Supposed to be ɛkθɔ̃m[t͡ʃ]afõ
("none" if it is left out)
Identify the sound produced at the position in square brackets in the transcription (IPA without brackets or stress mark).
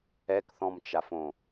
t͡ʃ